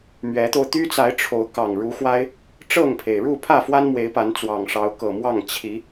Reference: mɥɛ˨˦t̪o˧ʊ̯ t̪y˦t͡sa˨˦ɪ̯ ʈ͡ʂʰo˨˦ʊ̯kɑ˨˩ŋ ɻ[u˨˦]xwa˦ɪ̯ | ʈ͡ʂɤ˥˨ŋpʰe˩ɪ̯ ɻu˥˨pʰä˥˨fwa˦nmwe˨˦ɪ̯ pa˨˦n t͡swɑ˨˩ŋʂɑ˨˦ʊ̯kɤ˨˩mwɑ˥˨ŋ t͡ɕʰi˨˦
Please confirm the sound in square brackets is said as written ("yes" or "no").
yes